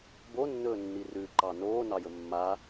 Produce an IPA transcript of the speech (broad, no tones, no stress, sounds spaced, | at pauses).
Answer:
b o nː ɵː nː i r ʉ ǃ ɑ n oː n ɑ j ɵ mː a